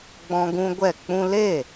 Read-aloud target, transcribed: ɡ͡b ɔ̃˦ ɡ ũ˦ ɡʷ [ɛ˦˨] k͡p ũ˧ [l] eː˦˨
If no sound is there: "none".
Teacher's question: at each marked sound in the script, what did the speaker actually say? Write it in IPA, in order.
ɛ˦˨, l

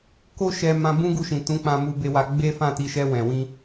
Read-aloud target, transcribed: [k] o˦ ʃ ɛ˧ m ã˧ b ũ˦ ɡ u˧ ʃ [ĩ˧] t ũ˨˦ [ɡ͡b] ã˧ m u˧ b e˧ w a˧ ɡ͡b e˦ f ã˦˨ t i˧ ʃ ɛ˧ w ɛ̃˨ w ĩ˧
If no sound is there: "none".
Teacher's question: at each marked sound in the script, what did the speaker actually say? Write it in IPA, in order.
k, ĩ˨, k͡p

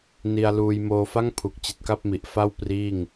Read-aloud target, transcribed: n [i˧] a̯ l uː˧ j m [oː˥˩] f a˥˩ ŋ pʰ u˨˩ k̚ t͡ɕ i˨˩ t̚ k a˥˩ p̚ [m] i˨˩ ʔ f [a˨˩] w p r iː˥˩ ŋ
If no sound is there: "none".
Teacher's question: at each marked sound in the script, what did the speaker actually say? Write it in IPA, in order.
i˧, oː˧, m, a˥˩

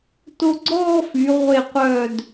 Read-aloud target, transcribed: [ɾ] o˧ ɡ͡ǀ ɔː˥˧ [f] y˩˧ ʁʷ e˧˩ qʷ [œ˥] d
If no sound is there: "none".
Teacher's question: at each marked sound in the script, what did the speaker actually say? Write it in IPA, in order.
t, f, œ˧˩

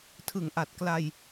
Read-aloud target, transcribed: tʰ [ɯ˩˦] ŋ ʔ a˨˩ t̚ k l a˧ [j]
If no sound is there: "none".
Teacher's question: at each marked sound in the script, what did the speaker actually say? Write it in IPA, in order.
ɯ˩˦, j

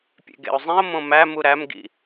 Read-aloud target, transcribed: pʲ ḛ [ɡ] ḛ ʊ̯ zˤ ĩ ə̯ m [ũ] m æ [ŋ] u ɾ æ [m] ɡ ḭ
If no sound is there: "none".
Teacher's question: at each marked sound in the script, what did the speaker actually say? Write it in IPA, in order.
ɡ, õ, m, m

